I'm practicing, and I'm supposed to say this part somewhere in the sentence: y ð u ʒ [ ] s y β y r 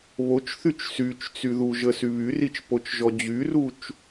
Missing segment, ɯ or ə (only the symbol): ə